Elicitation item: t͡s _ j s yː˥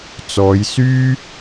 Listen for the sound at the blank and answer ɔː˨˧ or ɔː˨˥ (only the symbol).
ɔː˨˧